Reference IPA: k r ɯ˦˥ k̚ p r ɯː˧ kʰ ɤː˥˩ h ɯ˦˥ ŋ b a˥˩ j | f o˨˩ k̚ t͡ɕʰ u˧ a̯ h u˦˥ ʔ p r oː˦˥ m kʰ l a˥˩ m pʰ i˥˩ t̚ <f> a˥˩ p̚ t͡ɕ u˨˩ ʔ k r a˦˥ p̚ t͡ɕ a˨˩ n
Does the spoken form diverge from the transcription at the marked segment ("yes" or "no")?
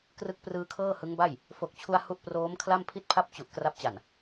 yes